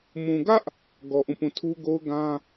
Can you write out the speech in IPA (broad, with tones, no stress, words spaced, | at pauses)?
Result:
mũ˨ɡä˦ʔ | ɡɔ˦ʔũ˦˨pũ˦˨ tʰu˦ɡo˦ʊ̯ ɡã˦